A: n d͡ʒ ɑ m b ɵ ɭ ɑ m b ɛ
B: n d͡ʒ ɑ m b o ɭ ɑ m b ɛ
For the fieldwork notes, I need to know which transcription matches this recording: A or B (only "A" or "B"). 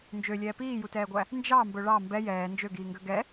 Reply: A